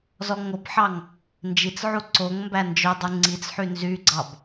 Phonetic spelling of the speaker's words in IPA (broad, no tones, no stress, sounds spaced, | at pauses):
z ɔ ŋ o b ħ ɑ ŋ | n d͡ʒ i t͡s ʕ u ǀ o ŋ m b æ n d͡ʒ œ dˤ u ŋ͡ǀ i t͡s ħ y n z y ɡ͡ǀ ɑ b